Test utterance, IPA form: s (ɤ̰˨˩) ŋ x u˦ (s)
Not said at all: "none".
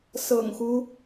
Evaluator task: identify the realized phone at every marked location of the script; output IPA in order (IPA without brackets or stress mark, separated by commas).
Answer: ɤ̰˨˩, none